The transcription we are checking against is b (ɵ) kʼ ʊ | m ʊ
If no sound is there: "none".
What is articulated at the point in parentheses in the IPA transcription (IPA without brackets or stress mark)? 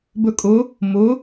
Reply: ɵ